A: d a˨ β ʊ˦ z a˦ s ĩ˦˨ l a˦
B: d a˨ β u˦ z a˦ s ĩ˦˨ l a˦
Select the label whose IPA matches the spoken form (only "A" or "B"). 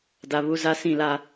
B